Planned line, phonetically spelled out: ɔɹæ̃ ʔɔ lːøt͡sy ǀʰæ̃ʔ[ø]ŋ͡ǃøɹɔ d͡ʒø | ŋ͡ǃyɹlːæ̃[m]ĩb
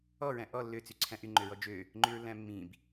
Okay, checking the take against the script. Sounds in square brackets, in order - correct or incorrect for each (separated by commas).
incorrect, incorrect